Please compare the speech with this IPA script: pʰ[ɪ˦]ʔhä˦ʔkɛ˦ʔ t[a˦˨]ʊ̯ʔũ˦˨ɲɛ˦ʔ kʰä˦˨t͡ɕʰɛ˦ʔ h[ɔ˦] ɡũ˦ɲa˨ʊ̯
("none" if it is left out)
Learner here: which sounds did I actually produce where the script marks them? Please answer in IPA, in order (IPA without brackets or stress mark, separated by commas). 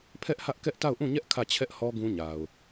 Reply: ɛ˦, a˦˨, ɔ˦